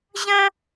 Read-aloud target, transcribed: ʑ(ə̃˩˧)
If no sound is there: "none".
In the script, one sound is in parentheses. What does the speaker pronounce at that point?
ə̃˥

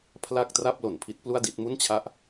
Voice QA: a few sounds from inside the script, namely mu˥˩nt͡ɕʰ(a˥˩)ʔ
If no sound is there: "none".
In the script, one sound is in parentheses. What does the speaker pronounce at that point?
a˥˩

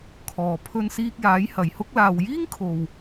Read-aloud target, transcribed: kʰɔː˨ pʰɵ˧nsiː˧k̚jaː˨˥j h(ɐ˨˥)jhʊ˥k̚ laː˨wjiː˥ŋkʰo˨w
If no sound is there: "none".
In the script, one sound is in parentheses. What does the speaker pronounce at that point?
ɐ˨˧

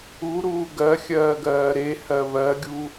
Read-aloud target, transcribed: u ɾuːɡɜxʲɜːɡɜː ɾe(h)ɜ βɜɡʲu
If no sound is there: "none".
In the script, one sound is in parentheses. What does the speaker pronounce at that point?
h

